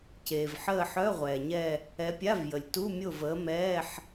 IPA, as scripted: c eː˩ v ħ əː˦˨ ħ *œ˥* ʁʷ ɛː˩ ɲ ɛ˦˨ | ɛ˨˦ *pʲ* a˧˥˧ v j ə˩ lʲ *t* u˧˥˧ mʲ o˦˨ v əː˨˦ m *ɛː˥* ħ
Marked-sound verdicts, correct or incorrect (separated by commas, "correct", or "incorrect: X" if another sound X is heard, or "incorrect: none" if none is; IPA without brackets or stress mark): incorrect: œ˧˥˧, correct, correct, incorrect: ɛː˧˥˧